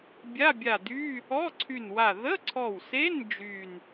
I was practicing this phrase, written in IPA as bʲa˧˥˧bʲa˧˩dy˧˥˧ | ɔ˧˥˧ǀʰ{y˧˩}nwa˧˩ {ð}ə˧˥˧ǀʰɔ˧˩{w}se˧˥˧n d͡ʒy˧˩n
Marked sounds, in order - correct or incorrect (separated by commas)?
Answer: correct, correct, correct